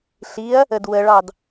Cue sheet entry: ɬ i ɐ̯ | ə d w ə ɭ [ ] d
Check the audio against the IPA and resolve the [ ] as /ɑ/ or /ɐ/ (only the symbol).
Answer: ɑ